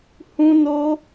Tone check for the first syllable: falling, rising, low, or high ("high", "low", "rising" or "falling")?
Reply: high